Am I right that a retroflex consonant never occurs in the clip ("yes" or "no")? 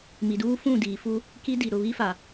yes